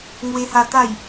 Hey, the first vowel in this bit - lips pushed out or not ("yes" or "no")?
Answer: no